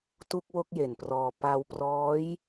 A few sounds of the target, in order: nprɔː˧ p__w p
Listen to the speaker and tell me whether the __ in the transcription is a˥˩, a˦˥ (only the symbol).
a˦˥